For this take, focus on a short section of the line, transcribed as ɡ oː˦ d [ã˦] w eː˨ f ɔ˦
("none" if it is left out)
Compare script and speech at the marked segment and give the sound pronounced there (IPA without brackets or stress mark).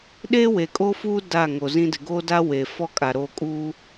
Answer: a˦